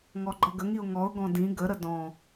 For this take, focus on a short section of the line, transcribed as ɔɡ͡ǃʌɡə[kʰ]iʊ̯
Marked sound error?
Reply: yes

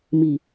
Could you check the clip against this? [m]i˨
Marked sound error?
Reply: no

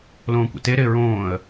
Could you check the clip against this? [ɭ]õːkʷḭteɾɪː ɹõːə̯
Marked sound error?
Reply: yes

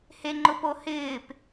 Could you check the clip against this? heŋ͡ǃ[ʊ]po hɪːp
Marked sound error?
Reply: no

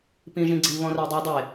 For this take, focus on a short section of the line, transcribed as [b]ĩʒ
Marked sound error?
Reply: yes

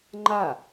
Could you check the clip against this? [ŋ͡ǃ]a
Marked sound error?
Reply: no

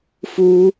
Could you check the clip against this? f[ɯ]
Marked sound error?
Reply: yes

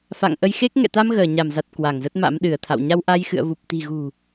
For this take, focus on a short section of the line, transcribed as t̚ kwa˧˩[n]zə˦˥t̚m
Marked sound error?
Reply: yes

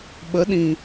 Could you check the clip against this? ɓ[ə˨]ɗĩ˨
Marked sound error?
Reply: yes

